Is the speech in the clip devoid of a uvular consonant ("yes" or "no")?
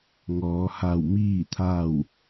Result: yes